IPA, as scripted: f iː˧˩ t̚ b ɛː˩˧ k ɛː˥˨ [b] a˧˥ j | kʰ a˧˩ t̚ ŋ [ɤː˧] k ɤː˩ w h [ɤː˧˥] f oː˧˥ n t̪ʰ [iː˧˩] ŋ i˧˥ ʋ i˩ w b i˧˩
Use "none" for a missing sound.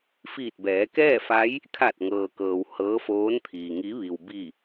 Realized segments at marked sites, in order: f, ɤː˩, ɤː˧˥, iː˩

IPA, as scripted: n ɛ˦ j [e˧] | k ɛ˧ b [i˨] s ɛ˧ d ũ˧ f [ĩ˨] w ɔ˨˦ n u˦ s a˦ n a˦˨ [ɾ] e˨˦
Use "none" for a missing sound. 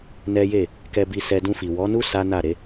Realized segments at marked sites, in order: e˦˨, i˧, i˨, ɾ

